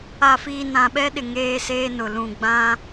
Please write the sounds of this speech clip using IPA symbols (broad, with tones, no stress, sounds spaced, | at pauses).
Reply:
a˨ f iː˨ n ã˨ ɓ ɛ˦ ɗ ɪ˨ ŋ eː˦ s eː˦ n ʊ˨ l ũ˨ ɡ͡b ã˦